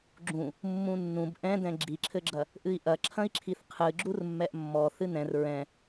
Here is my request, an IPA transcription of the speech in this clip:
ɡ͡ǁũ | mːũnːũb ʔɛ̃dɛ̃ ɡ͡ǁiǁʰɘɡ͡ǁɐ | ʔɨi̯ʔɐ ǁʰɐ̃i̯ǁʰiθqʰɨ ɡ͡ǁurmːɛʔmːɔθɨ nɛ̃r ɹɛ̃

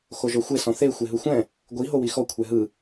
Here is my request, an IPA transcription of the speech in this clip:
xoʒɔxʷe sɔ̃θe xʷeɦɯxʷɛ̃ | ɡʷi ɦowixɔ kʷʰɛɦɯ

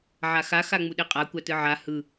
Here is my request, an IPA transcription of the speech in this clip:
ʕaxa xaŋ͡muɗeqʼa kʷatɯʕa hɯ

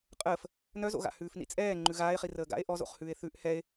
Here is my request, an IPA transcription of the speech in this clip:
qʼəːf | nœzo̰ɣa̰ hʉːfnḭt͡sʼɛː ŋ͡ǃʉɣaːe̯χi rəːɡa̰e̯ ʔɔzo̰χhʉːe̯ θʉʔ hɛe̯

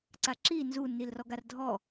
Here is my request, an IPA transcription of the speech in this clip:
ǀaǁi nzunːilrɔɡ ardʱɔ

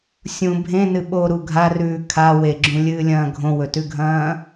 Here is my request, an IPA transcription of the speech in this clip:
sʲũ bʱẽnɨ ɓoɾu ɡʱarʉː kʰa weɡ͡ǁũlʲɨːlʲɐ̃ː ɡʱõwɵtʉɡʱɐ̃ː

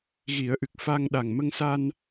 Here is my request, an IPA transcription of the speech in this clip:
ɣi˨˩˦ə̯ʔɨ˨˩k̚ fa˧ŋ ɗa˨˩ŋmə˧ŋsa˧n

